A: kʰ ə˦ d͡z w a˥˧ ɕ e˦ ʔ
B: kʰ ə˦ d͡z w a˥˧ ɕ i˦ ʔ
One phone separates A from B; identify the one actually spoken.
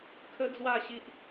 B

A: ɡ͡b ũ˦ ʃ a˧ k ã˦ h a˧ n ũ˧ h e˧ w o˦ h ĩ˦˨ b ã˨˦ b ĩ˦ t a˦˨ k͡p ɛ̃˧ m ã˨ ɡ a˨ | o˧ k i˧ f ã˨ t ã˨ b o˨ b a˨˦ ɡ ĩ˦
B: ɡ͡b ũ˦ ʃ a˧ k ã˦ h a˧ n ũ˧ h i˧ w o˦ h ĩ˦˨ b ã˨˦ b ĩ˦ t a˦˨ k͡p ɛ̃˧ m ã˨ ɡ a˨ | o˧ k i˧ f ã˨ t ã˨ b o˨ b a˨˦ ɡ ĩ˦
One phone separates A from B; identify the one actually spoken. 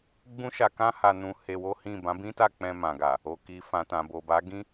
A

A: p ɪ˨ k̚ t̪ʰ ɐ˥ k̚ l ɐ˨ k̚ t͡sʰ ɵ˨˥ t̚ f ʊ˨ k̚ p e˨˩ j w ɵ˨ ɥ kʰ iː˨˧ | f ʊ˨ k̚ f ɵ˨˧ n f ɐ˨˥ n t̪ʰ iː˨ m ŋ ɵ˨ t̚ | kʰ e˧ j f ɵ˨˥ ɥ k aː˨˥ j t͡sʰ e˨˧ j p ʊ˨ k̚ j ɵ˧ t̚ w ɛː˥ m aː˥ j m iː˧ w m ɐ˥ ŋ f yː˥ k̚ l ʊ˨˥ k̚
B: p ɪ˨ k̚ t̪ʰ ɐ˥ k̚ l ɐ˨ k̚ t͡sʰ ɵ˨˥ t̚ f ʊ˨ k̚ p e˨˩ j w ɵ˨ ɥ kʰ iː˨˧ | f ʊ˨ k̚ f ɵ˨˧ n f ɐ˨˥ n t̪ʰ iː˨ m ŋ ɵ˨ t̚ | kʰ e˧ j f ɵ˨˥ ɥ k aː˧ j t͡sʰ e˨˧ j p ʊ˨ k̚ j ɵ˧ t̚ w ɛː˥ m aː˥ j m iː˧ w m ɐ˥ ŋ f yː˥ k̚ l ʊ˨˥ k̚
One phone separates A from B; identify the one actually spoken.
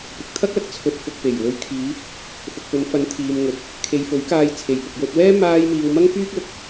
B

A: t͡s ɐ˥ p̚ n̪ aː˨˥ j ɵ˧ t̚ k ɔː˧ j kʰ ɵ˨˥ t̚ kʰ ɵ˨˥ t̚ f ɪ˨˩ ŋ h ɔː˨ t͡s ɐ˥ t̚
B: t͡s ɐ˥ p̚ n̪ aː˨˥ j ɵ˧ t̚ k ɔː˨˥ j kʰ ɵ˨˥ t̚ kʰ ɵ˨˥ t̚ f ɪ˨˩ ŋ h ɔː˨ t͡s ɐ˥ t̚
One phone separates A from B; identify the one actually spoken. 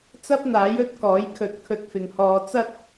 B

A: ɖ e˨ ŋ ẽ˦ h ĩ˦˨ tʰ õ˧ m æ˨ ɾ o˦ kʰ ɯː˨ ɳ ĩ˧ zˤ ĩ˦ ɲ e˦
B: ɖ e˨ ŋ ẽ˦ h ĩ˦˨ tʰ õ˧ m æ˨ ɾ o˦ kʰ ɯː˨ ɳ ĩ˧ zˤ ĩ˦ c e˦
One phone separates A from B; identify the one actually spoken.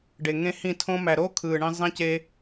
B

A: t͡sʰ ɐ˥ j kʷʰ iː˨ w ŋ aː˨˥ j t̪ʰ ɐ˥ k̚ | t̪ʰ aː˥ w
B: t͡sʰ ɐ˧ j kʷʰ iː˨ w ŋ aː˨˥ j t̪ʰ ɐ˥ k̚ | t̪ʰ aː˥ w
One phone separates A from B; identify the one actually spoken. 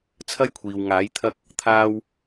A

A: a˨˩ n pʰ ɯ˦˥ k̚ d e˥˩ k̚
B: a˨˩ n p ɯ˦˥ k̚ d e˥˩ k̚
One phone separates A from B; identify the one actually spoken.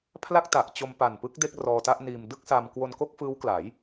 B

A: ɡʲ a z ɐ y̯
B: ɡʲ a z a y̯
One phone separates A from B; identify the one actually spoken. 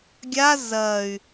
A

